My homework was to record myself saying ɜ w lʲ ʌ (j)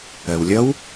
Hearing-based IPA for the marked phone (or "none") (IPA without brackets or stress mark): w